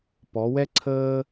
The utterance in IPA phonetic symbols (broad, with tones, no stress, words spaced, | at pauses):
pɔ˩˧wɛ˥ ǀʰəː˥